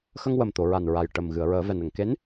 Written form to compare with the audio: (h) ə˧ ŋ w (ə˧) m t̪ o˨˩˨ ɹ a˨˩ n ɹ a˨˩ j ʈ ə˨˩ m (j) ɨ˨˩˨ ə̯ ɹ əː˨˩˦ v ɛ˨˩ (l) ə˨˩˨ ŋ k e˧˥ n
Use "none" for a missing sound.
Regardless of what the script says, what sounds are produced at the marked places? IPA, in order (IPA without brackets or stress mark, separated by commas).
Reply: x, ə˨˩, ɣ, n